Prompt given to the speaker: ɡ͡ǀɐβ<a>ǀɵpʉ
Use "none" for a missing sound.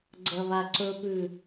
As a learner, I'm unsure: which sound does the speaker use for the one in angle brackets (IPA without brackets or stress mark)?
a